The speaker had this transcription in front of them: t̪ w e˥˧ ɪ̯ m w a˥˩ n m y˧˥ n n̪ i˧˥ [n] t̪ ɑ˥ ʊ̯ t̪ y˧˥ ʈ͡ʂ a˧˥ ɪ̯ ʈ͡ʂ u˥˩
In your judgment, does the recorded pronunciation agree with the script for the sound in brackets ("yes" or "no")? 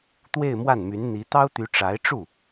no